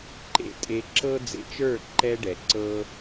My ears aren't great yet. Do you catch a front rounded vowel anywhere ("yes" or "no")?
no